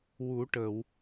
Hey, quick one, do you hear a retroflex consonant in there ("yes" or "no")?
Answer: yes